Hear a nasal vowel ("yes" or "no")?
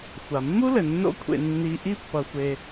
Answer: no